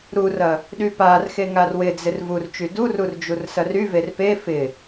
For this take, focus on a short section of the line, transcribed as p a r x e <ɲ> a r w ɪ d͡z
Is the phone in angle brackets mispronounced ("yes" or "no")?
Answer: yes